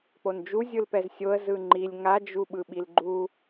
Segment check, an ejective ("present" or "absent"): absent